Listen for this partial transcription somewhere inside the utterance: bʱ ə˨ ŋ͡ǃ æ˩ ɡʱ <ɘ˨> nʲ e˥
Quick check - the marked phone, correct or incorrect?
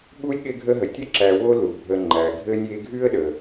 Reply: incorrect: ɘ˥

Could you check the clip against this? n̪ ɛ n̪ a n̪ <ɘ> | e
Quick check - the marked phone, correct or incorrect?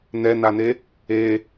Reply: incorrect: e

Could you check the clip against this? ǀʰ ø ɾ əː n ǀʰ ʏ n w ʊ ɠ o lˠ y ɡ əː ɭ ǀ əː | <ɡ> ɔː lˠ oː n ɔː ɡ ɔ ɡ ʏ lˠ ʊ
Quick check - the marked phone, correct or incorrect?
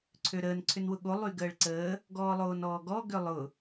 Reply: correct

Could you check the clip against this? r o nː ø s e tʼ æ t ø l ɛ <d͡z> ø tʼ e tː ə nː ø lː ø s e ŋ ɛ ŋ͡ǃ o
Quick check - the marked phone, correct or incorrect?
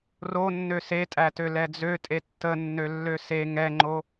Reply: correct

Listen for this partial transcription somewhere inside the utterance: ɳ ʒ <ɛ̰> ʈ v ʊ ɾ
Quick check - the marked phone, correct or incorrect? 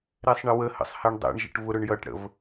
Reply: incorrect: ə̰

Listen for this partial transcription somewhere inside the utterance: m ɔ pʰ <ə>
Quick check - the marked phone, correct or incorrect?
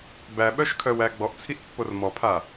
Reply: incorrect: a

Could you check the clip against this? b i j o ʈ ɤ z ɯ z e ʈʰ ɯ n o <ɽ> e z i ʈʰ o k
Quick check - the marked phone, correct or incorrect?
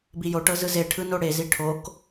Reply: correct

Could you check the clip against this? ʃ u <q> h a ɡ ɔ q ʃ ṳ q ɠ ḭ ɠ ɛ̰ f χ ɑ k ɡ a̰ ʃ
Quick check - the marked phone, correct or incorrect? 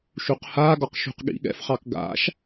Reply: correct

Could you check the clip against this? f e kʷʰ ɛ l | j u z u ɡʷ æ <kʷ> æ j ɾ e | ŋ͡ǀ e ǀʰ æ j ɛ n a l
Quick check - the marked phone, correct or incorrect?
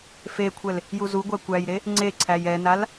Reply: correct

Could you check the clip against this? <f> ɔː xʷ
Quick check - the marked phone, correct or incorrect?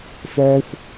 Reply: correct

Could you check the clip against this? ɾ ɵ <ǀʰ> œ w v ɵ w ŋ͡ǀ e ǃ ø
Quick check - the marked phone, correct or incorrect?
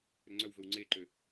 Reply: incorrect: ŋ͡ǀ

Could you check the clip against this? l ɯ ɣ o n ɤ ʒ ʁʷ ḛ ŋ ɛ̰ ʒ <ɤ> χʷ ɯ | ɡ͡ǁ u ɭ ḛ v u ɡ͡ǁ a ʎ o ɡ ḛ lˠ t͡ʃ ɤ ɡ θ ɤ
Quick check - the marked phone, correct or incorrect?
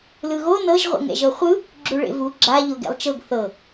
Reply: correct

